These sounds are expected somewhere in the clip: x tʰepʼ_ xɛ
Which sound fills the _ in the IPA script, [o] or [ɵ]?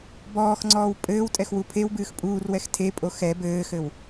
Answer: o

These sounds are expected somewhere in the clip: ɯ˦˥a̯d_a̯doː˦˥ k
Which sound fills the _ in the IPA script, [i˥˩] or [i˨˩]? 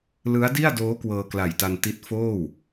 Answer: i˥˩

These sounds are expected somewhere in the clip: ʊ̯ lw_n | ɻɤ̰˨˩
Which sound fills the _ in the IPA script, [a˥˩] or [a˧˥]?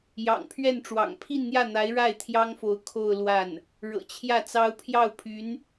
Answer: a˥˩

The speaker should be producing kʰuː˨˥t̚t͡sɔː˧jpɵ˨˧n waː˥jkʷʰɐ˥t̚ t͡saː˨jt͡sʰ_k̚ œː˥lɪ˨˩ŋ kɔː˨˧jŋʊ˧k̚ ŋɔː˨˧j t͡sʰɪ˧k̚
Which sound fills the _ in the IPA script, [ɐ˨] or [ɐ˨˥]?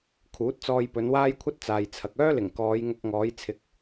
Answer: ɐ˨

